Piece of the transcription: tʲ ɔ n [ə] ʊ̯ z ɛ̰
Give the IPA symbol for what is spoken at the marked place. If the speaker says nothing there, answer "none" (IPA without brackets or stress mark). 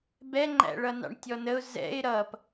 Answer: ə